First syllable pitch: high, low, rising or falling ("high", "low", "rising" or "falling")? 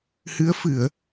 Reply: rising